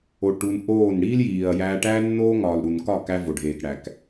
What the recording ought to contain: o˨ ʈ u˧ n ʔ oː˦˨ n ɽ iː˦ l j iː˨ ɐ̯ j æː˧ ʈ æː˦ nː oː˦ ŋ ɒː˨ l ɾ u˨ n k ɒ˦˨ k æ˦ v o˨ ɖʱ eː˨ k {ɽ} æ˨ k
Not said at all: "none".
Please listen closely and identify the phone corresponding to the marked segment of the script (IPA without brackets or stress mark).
ɽ